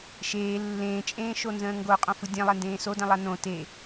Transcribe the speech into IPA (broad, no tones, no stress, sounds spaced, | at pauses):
ʃ eː lː ẽː t͡ʃʼ ẽː ʃ o n z ə̃ː ŋ ɡ o qʼ õ f ɯ dʲ ẽ lˠ ɛ n d ẽː s o d ɛ̃ lˠ a n õ t e